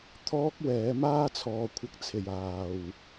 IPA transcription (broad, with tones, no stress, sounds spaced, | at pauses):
t̪ʰ ɔː˥ k̚ w ɛː˨˥ m aː˥ t͡sʰ ɔː˨˧ kʷʰ ɐ˧ k̚ t͡sʰ e˨˩ j aː˨˩ w